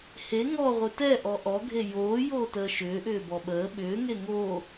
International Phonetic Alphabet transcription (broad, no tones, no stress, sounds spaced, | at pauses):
h e ŋ ɔ ʁʷ ɨ t ɛ ʔ ɔ ʔ ɔ ɡʱ e j oː j oː t əː ʃ ʏː ʔ ʏː b ɔ ɓ əː ɓ ʏː ŋ e ŋ oː